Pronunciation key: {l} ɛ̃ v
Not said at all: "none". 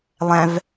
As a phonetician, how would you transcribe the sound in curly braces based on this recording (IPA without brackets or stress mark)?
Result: lˠ